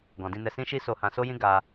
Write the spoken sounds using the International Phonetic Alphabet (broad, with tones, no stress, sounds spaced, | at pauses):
ɡ ɔ̃˨ d ĩ˧ n ɛ˧ s ĩ˦ ʃ i˦ s o˧ h ã˧ s o˦ j ĩ˦ ɡ a˧